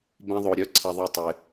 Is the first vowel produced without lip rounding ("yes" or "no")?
yes